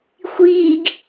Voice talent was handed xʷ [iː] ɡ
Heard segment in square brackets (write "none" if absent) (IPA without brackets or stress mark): iː